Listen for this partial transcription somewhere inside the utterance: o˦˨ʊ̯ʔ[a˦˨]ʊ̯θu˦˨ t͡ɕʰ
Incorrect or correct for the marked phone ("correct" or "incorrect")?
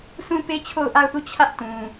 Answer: correct